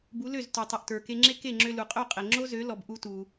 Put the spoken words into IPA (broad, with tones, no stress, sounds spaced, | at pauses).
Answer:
b u˩˥ l ø˥˩ z t ø˩ tˤ u˩ ʔ t ə˞˩ k e˧ ŋ͡ǁ e˥ k e˥˩ ŋ͡ǁ ø˧ l u˩ qʼ ø˥˩ qʼ e˩ ŋ͡ǁ o˥ z ø˩˥ l ɔ˩ b ʔ u˧ t u˩